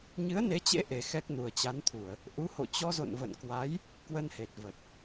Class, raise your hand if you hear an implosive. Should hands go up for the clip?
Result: no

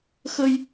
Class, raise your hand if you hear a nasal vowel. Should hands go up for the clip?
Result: no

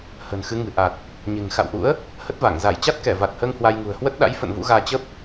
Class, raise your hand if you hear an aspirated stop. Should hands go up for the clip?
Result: no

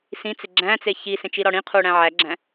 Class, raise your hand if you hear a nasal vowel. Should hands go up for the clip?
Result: yes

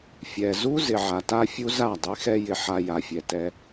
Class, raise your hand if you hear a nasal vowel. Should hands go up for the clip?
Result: no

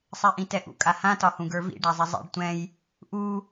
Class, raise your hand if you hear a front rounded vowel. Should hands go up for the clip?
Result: no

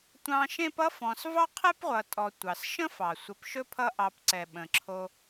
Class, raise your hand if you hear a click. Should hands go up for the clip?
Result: yes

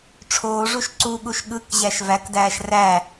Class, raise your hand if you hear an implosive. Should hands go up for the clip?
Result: yes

